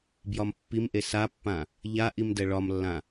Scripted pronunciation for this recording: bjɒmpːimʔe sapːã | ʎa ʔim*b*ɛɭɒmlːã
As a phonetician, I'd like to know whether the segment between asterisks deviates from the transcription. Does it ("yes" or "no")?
yes